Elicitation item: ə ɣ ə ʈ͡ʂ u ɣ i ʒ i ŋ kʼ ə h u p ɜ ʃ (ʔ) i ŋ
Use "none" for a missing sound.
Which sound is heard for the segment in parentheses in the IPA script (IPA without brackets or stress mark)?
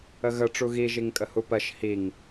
h